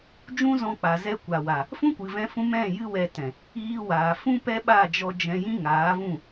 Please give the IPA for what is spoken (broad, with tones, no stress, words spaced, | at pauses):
d͡ʒũ˦zɔ̃˧k͡pa˨ zɛ˧kʷa˨wa˨ | fũ˦kʷɨ˨vɛ̃˧fũ˧ mɛ̃˦˨ jɨ˧wɛ˨ tɛ̃˨ | iː˧waː˨ fũ˦ pɛ˦ɓa˦˨d͡ʒɔ˧ d͡ʒɛ̃˧ jĩ˦ŋaː˨˦vũ˦˨